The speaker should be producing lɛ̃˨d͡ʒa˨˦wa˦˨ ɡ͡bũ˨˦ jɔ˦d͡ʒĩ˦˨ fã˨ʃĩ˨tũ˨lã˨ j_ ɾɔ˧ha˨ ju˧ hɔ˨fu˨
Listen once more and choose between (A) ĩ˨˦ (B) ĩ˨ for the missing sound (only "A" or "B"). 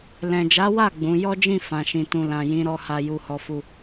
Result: A